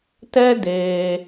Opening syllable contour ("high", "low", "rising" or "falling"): high